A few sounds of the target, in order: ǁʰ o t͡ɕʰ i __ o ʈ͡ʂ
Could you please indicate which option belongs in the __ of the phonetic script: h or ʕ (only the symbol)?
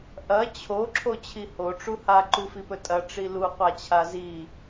h